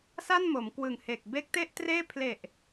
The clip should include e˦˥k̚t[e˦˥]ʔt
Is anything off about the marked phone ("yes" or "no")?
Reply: yes